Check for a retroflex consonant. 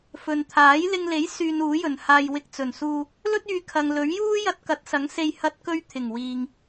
absent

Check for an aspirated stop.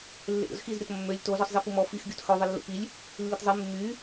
absent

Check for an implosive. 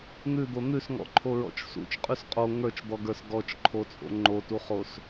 absent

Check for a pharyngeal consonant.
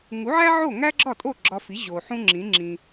present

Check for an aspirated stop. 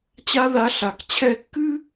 present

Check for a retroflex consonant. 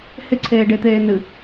present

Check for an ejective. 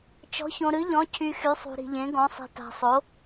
absent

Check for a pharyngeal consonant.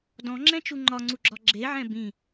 present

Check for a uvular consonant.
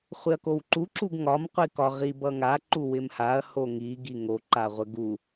present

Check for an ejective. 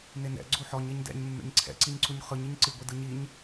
absent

